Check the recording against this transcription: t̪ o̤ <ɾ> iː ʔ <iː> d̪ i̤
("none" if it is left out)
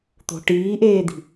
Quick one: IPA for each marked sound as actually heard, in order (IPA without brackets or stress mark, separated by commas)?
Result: ʈ, eː